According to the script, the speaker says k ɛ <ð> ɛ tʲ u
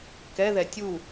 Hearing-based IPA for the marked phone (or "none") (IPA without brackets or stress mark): ð